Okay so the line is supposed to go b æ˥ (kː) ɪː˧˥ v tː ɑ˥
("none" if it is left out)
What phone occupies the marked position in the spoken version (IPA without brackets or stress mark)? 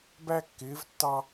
kː